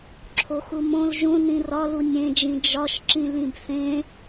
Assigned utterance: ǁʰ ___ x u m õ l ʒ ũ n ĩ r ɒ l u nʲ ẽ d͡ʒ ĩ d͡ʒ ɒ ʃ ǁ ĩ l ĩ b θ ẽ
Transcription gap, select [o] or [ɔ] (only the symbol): o